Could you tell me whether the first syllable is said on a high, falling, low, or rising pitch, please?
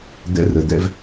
rising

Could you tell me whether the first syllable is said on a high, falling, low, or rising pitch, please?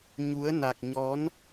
rising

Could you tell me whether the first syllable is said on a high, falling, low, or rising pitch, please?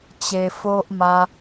low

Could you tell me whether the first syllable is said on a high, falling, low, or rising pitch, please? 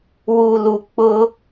low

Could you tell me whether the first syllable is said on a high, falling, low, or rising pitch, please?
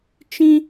high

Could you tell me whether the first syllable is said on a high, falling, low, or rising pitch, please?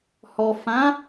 low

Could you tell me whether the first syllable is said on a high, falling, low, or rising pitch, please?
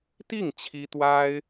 falling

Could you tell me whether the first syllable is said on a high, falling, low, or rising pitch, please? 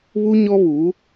high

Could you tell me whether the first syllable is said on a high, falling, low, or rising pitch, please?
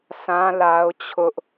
high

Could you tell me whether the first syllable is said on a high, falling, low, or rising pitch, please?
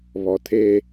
low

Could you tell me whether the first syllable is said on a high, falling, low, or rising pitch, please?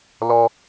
high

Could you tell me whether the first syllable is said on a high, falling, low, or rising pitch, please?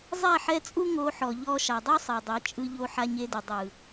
falling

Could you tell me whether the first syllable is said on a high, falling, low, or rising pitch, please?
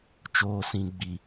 low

